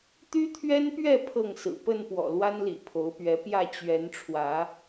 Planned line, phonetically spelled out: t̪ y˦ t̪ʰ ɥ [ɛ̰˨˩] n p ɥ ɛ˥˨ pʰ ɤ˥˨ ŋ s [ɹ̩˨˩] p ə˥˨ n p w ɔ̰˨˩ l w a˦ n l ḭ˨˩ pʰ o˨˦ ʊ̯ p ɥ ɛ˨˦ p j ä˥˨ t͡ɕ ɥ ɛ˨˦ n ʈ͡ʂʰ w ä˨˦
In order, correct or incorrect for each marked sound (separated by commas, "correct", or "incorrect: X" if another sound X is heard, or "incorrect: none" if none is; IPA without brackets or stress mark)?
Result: incorrect: ɛ˦, correct